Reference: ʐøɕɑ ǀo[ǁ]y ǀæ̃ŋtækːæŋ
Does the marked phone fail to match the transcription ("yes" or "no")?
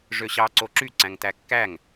no